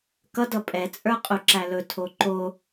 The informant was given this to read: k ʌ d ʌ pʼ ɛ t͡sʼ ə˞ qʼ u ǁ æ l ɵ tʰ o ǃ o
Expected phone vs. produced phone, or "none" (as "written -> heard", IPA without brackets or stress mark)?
none